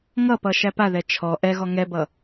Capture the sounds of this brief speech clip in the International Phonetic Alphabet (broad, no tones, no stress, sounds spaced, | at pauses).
ŋ ʌ p ʌ ʃ æ p a ð ɛ t͡ʃʰ ɔ ʔ ɛ ɣ ɔ ŋ ɛ b ʌ